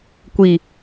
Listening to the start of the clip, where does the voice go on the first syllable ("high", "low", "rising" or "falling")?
low